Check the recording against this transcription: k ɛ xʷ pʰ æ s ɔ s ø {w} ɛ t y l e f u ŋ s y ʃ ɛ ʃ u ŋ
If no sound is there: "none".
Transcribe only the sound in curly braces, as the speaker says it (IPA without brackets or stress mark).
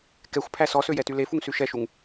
j